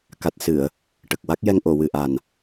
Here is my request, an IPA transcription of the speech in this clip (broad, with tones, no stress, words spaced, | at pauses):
ka˨˩t̚sɨ˨˩˨ə̯ | ʈə˨˩k̚ wa˦˥k̚jɛ˧ŋ ʔo˨˩˨wɨ˨˩ʔa˨˩n